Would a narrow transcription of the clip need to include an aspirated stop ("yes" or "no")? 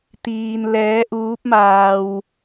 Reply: no